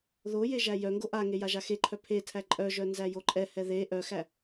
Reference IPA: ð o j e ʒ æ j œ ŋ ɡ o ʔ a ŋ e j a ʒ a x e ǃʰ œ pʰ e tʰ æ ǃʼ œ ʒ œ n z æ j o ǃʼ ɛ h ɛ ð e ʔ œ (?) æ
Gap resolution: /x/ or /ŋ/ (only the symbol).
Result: x